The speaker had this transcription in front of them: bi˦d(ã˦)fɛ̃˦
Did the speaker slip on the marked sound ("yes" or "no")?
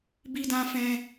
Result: no